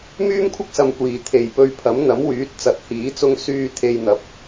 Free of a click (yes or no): yes